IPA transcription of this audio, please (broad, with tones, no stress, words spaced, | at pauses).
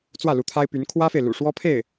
t͡swä˥˩lu˧˥t̪ʰa˥ɪ̯py˧˥n kʰwä˥fe˨ɪ̯ lṵ˨˩ʂwɔ˥pʰe˥˩ɪ̯